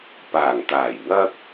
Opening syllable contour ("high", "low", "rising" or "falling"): low